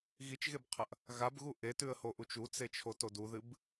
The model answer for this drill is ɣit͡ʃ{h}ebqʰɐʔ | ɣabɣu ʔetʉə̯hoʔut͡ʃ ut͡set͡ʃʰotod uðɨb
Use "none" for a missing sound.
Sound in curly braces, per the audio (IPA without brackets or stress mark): ɣ